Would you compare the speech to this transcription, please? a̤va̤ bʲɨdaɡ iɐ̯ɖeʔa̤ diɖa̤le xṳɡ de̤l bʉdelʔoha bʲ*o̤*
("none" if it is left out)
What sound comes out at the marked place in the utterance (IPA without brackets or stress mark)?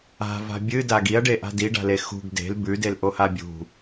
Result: ṳ